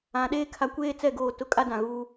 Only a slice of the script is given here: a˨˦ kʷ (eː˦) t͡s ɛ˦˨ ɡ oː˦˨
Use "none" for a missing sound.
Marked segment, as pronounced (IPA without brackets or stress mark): eː˦